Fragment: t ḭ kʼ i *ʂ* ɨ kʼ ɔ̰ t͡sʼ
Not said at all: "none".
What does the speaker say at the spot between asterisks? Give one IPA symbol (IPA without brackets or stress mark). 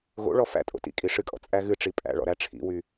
ʂ